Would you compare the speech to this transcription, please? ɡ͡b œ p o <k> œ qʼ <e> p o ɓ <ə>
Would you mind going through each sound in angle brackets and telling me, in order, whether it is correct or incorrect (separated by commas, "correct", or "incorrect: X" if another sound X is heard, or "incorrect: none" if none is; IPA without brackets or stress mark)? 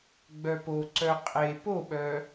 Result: incorrect: ǀ, correct, incorrect: œ